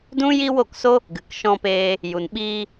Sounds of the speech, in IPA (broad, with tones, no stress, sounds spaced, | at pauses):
d ũ˦ j i˦ w o˦˨ k s o˦ | ɡ ɨ˨ k ʃ ɔ̃˧ p eː˧ | j u˧ n ɓ iː˧